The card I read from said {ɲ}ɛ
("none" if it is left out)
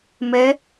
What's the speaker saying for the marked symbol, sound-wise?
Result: m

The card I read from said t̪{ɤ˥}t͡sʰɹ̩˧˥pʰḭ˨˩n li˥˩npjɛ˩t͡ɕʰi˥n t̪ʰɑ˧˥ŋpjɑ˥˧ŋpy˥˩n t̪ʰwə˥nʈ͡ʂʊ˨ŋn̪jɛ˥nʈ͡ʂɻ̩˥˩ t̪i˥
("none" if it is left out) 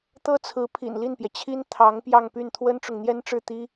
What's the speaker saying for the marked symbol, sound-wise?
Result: ɤ˥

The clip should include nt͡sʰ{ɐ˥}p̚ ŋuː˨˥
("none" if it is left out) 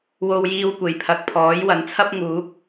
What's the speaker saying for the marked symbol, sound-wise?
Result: ɐ˥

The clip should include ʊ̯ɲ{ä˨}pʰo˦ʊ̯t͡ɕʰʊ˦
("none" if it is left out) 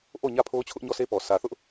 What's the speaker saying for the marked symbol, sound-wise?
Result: ä˦˨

